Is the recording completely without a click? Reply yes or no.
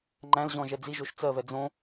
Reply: no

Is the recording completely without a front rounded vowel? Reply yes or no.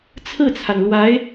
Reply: yes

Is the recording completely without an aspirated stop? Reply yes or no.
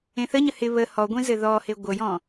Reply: yes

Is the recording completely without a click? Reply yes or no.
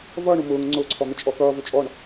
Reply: no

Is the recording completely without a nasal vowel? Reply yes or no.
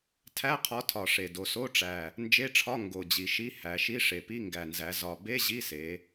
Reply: yes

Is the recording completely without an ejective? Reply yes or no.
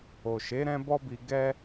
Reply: yes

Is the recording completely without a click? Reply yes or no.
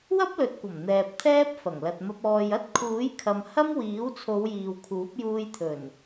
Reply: yes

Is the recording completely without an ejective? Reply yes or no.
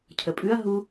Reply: no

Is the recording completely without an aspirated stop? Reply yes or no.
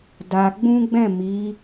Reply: yes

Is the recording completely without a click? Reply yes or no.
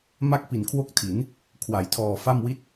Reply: yes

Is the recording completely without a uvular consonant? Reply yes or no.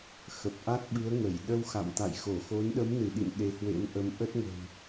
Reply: yes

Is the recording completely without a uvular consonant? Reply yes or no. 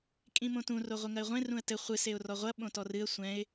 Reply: no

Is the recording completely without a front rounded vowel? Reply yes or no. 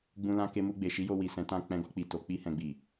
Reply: yes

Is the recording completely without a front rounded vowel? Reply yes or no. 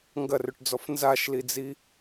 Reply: no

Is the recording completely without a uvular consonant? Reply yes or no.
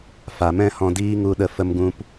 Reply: yes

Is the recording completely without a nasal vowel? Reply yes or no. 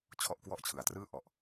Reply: yes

